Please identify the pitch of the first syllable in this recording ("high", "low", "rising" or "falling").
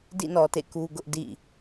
falling